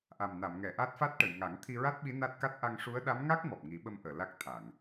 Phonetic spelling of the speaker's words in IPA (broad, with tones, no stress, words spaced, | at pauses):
ʔa˨˩m na˨˩˨mŋɛ˨˩˨ ʔa˦˥t̚fa˦˥t̚ʈə˨˩˨j ŋa˨˩˦ŋ t̪ʰi˧ɹa˦˥t̚ɓi˧˥ na˦˥t̚ka˦˥t̚ ʔa˧ŋʂu˧˥ə̯ ɗa˧˥mŋa˦˥k̚ mɔ˨˩p̚ŋi˨˩˦ɓə˧m ʔəː˨˩˨la˦˥k̚ t̪ʰa˨˩˨ŋ